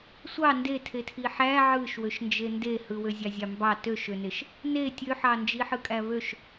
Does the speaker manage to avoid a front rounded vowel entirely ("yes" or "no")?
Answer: no